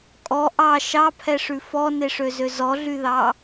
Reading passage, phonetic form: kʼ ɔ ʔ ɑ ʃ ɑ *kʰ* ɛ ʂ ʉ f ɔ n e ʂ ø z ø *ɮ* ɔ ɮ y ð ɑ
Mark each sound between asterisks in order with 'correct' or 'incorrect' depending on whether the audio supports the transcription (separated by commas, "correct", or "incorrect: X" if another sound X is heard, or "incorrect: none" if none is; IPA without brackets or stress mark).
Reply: incorrect: pʰ, incorrect: z